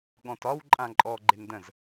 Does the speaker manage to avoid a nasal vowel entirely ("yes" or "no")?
no